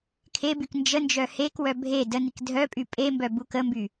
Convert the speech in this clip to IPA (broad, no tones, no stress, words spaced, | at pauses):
kʰebyk nd͡ʒənd͡ʒœ hekwœ bʱe dənik dʱœpʼy pʼembœ bukəmby